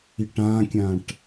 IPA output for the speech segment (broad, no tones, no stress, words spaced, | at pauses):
iʈãkʲãʈ